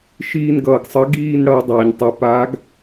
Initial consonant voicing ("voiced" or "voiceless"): voiceless